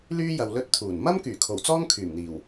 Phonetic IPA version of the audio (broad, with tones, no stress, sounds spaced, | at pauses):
l yː˥ j ɐ˨ w l ɵ˧ t̚ t̪ʰ uː˨˩ n m ɐ˥ m k yː˨˩ kʰ o˨˩ w t͡s ɔː˥ ŋ kʰ yː˨˩ m n̪ iː˨˩ w